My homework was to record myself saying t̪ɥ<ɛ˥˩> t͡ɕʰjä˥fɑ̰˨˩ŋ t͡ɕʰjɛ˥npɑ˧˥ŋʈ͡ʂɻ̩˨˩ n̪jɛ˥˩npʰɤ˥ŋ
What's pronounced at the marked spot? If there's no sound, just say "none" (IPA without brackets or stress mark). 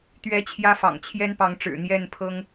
ɛ˧˥